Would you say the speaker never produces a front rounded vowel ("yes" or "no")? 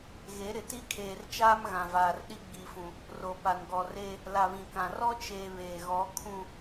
yes